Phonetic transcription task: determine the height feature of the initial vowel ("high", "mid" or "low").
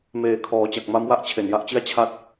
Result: mid